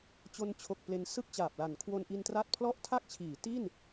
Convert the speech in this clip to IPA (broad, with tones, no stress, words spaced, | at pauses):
t͡ɕo˧nt͡ɕʰo˨˩k̚ ple˧nsɯ˥˩k̚t͡ɕaː˨˩p̚la˨˩n kʰwo˧nʔi˧ntra˦˥t̚pʰlɔ˥˩ʔ tʰa˥˩k̚t͡ɕʰiː˩˦ ti˥˩n